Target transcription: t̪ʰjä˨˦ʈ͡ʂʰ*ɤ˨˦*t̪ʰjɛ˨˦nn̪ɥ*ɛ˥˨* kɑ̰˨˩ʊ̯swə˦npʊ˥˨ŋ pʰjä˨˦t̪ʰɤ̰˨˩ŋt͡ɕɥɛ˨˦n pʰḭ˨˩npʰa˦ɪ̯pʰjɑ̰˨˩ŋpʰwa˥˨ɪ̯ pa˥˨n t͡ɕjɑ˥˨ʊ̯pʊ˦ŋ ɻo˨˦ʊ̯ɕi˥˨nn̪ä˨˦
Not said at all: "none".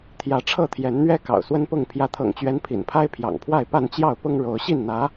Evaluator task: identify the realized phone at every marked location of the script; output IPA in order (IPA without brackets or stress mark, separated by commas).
ɤ˥˨, ɛ˦